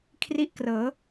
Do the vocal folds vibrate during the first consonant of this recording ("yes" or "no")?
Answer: no